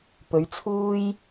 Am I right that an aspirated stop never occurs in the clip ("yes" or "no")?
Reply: no